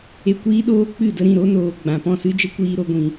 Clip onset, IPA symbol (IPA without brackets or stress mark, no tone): e